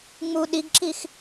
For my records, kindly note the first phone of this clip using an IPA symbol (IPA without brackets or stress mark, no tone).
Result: ŋ͡m